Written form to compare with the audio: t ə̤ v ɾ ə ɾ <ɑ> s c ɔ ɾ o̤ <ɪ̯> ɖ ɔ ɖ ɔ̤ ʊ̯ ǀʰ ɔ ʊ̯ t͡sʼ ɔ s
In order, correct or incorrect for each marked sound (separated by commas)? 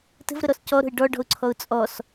incorrect, correct